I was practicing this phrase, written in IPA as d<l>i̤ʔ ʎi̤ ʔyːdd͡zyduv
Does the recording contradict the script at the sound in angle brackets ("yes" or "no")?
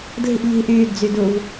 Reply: no